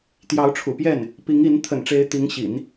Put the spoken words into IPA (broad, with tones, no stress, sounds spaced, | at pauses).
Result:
t̪ j ɑ˧˥ ʊ̯ ʈ͡ʂʰ ṵ˨˩ p j ɛ˥˩ n | p i˧˥ ŋ i˧˥ n t̪ʰ ə̰˨˩ n ʈ͡ʂ e˧˥ ɪ̯ t̪ i˧˥ ŋ ɕ ḭ˨˩˦ n